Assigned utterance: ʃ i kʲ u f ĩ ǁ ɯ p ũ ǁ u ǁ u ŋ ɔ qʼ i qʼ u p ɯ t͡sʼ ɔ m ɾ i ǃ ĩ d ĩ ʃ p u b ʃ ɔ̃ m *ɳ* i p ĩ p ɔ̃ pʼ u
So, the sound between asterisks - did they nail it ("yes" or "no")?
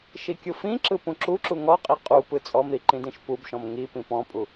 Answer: no